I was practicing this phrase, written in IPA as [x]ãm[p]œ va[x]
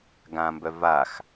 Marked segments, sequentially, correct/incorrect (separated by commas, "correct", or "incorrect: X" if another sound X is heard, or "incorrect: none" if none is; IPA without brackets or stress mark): incorrect: ɡ, incorrect: b, correct